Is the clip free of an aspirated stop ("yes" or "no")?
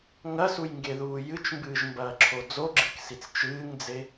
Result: no